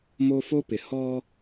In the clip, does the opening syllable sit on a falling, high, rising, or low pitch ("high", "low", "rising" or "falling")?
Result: high